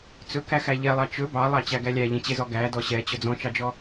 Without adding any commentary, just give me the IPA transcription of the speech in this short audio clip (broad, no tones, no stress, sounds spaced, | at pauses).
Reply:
t͡s ɵ k æ x æ ʎ ɛ lˠ ɑ t͡ʃ ɵ b ɑ lˠ ɑ t͡ɕ æ ɡ æ lʲ æ ʎ ẽ t͡ɕ e z ɔ ɡ æ d ɔ ɕ ɛ t͡ɕ ɵ d͡z ɔ̃ t͡ʃ ɑ d͡ʒ ɔ